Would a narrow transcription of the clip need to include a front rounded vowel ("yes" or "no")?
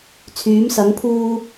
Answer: yes